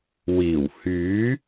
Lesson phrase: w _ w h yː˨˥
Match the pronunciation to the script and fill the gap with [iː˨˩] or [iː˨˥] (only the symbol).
iː˨˩